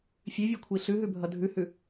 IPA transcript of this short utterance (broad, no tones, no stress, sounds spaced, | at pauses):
fʲ ʉ vʲ u kʷʰ i ɬ ʉ ɦ ʉ bʱ ʌ dʱ ʉ h ʉ